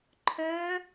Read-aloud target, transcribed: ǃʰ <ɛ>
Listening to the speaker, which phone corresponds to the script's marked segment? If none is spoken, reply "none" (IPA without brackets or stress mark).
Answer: œ